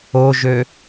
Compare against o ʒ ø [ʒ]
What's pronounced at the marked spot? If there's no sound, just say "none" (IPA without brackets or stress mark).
none